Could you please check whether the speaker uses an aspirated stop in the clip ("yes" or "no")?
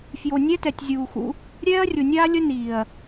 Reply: no